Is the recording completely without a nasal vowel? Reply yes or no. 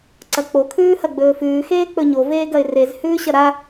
yes